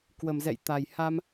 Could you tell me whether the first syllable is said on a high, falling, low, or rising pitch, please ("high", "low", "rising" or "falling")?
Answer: low